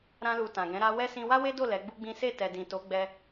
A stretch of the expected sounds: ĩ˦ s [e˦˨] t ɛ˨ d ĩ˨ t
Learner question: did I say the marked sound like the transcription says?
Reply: yes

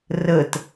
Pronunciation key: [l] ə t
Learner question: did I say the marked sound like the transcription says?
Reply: no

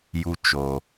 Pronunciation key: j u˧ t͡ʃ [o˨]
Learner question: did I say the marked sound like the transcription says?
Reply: yes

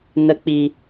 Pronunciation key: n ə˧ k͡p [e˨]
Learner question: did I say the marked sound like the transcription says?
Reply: no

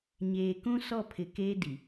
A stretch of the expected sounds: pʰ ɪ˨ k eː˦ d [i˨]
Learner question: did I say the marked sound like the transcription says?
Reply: yes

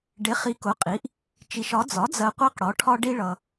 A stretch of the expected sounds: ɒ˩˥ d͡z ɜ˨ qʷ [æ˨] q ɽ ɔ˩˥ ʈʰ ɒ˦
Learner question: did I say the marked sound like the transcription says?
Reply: no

